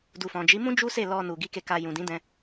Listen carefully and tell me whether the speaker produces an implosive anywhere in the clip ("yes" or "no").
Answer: no